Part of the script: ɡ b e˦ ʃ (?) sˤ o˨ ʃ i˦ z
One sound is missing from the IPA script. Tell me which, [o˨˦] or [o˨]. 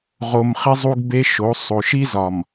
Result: o˨˦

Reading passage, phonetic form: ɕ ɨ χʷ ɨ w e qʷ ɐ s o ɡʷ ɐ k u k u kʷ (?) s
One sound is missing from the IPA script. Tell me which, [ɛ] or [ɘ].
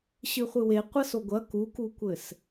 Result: ɘ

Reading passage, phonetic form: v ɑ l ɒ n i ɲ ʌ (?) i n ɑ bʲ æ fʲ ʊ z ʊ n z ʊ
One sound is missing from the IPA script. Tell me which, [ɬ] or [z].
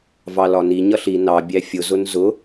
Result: ɬ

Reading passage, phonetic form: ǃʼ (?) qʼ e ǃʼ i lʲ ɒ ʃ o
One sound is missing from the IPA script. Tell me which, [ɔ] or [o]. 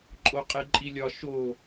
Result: o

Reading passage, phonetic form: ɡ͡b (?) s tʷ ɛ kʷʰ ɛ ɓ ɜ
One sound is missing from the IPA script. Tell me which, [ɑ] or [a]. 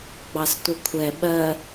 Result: ɑ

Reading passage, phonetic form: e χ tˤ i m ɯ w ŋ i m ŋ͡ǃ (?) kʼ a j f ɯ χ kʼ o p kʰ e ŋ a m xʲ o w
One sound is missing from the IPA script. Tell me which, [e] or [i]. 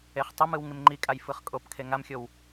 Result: i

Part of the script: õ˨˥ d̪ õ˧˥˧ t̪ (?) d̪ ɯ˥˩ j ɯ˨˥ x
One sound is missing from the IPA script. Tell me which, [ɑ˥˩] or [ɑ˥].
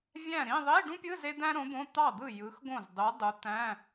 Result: ɑ˥˩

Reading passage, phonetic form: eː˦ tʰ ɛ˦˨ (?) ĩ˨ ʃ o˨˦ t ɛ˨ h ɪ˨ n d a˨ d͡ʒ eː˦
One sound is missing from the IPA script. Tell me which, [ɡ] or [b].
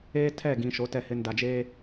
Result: ɡ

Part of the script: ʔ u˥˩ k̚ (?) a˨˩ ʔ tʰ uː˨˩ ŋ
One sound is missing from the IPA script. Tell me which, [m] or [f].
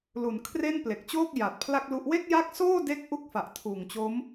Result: f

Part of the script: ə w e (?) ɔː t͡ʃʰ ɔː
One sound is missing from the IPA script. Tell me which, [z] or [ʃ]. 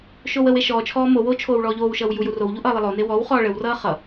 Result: ʃ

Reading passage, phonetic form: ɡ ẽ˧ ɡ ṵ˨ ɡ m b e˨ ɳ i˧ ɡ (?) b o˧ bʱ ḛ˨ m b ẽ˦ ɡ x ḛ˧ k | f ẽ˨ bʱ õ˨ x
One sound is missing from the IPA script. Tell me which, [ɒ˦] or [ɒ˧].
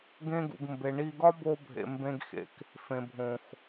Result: ɒ˦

